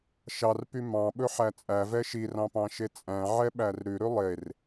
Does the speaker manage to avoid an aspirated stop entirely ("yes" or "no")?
yes